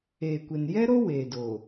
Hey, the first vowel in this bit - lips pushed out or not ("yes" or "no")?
no